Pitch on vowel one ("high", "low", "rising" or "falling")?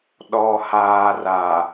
low